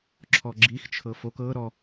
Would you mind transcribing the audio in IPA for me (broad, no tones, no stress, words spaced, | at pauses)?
ǁʰɔɡ͡ǁixt͡ʃʰɤ fok ɤ ɾɔ